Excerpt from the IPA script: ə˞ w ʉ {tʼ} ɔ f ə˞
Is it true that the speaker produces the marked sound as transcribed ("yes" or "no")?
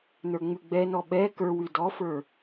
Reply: no